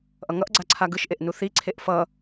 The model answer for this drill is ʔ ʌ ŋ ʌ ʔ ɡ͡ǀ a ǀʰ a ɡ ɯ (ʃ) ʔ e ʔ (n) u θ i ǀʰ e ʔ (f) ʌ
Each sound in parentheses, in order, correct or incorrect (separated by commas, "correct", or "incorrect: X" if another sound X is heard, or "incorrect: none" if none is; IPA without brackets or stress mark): correct, correct, correct